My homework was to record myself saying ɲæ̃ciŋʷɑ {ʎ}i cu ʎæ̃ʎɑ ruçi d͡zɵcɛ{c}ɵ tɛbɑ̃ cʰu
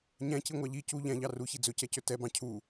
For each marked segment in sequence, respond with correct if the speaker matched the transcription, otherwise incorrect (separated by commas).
correct, correct